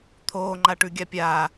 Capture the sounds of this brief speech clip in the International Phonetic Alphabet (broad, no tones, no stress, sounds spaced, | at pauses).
t̪ʰ oː ŋ͡ǃ a ʈ ʉ ɡʲ a pʲ aː